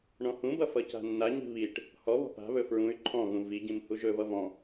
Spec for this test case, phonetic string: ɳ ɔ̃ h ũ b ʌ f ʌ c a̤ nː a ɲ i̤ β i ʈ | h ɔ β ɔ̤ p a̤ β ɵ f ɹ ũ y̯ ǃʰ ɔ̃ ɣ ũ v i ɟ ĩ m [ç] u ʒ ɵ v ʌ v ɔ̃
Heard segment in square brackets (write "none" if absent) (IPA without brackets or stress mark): h